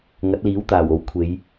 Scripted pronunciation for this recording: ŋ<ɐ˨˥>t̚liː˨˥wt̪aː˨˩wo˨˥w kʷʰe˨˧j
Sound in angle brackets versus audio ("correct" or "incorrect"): correct